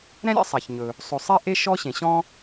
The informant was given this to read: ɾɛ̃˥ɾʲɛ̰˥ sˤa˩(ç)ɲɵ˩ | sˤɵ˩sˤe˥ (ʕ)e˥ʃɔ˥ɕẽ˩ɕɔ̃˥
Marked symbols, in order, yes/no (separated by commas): yes, no